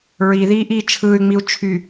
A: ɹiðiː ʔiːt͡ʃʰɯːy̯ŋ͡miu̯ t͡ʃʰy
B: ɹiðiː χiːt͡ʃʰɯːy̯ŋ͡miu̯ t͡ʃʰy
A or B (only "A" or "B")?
A